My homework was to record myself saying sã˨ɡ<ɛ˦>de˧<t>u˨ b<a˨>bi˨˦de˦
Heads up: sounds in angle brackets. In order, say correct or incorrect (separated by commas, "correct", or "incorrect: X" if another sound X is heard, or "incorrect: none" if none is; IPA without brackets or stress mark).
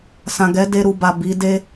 incorrect: ɛ˨˦, incorrect: ɾ, correct